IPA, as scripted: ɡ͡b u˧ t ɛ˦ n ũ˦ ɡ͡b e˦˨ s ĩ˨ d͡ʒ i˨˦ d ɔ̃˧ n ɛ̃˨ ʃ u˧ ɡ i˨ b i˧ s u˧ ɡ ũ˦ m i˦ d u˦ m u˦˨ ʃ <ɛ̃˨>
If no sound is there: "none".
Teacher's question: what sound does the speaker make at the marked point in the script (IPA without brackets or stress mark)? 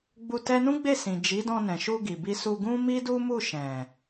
ɛ̃˨